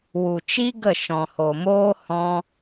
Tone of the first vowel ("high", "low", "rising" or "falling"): low